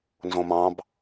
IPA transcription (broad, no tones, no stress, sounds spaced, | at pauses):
n z õ m ɑ̃ b